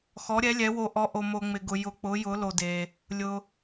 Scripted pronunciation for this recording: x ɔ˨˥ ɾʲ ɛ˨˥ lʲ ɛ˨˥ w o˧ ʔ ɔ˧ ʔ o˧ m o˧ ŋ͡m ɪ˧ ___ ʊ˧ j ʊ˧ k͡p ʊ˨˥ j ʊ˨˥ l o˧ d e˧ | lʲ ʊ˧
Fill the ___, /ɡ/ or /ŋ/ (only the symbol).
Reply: ɡ